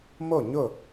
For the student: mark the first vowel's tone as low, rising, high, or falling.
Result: falling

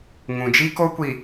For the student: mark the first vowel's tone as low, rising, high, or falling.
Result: low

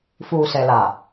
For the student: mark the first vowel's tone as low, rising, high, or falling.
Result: low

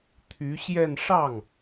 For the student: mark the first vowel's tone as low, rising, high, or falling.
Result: rising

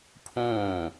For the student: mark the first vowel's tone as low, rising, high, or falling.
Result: falling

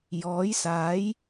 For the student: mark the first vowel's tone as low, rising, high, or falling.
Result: rising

